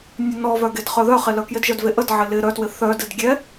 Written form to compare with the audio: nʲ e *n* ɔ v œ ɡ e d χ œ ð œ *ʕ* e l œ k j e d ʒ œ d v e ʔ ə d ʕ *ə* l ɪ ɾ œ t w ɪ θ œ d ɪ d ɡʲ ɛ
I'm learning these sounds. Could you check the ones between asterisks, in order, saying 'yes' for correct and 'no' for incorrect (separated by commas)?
yes, no, no